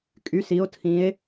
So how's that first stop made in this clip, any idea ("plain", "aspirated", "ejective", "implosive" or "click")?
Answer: ejective